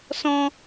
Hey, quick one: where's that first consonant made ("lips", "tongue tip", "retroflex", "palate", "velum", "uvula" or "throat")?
tongue tip